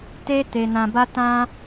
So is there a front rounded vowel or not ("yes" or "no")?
no